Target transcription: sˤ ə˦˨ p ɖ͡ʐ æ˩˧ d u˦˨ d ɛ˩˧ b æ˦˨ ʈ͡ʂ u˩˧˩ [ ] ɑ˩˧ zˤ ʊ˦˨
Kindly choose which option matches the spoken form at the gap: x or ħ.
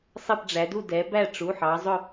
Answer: ħ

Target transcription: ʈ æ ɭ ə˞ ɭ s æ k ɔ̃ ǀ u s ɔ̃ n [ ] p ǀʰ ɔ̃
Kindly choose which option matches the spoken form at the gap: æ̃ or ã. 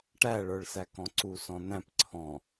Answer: æ̃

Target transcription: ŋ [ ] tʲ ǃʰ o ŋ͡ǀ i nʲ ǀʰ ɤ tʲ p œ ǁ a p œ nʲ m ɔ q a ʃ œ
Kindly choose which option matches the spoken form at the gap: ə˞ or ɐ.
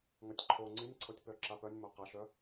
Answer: ɐ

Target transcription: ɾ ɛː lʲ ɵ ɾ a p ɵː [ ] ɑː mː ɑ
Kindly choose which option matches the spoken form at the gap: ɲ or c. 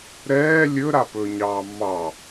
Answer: ɲ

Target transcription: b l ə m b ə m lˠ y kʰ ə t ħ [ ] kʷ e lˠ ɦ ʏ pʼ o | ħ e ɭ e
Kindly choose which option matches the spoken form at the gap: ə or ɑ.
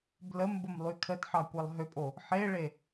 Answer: ɑ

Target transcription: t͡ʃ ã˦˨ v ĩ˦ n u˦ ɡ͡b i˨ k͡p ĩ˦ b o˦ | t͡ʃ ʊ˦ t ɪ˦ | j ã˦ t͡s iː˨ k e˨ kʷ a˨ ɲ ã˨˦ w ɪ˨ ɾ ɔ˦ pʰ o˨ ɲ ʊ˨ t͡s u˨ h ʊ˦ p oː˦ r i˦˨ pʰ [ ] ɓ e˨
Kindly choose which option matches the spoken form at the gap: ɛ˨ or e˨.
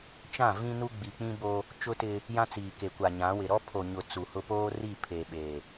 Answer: e˨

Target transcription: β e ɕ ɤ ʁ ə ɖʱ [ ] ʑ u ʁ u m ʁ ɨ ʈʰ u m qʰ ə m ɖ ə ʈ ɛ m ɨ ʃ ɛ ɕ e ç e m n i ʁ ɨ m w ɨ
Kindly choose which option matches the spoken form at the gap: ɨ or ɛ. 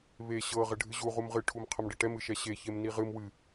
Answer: ɨ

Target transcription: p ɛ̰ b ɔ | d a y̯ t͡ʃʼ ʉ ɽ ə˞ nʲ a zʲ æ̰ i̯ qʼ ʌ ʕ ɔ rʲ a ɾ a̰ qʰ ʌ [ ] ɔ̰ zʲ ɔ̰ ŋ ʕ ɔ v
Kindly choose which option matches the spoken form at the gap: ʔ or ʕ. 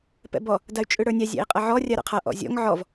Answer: ʔ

